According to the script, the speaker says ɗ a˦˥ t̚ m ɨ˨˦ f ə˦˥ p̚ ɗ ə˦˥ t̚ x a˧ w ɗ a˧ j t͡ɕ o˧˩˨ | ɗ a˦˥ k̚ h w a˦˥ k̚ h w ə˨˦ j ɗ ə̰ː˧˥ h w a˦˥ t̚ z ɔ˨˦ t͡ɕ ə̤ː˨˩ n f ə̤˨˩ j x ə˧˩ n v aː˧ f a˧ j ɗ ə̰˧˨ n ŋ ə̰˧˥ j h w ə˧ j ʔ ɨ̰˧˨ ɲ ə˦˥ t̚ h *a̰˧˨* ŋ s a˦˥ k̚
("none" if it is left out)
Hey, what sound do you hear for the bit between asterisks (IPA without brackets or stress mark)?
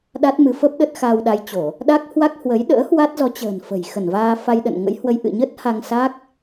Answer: a˧